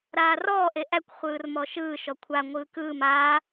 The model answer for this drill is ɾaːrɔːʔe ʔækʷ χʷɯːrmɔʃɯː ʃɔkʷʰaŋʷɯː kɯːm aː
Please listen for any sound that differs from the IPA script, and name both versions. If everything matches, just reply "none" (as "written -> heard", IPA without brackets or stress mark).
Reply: none